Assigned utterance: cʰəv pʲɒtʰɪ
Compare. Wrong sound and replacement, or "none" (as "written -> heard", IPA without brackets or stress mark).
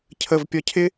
tʰ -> cʰ